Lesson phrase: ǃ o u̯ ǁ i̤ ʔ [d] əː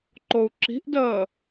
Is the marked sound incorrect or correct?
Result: correct